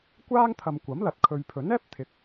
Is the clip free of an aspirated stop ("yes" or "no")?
no